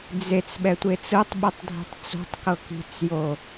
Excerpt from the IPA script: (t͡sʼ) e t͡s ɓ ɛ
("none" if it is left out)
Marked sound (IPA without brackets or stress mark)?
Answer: d͡z